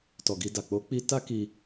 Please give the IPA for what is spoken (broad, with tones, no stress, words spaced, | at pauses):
tɔ˨ɡi˧da˨ k͡po˨˦ k͡pi˦ ta˦ki˧